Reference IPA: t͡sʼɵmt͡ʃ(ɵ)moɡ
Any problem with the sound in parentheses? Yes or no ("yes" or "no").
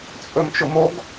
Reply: yes